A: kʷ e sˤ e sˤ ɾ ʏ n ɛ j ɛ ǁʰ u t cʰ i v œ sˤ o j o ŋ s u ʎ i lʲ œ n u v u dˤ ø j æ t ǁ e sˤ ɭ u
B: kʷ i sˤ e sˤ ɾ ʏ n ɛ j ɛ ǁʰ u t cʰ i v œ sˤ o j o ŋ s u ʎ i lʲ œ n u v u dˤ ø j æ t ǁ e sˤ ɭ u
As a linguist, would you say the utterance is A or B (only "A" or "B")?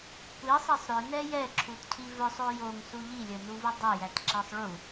B